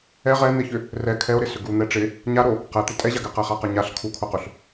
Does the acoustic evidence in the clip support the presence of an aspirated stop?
yes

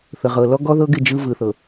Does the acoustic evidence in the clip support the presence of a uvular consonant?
yes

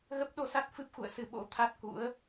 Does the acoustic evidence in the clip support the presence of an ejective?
no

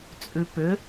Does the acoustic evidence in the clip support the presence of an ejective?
yes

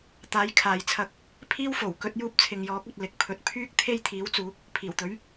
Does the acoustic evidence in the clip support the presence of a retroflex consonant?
no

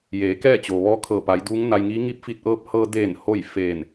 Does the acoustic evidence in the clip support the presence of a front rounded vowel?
no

